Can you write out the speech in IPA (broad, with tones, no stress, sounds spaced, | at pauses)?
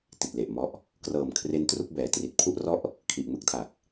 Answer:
t i˨˩ t̚ l e˨˩ ʔ m ɔ˦˥ ʔ | k r ɤː˨˩ m kʰ r e˦˥ n t r u˥˩ k̚ b ɛː˩˦ t r i˨˩ t̚ pʰ u˥˩ ʔ r ɔ˥˩ ʔ | kʰ i˨˩ ʔ m ɯ˦˥ k̚ tʰ a˨˩ k̚